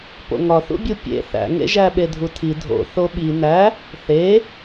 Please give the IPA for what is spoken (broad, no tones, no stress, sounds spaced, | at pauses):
p o̰ ŋ ɒ θ ṵ bʲ u pʲ ḛ θ æ̰ ŋ ḛ ʒ æ ɓ e dʱ u tʰ i dʱ o̰ θ o ɓ i n æ | θ e